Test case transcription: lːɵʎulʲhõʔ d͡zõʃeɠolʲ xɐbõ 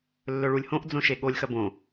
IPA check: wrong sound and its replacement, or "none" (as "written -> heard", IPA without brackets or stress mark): ʎ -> ɭ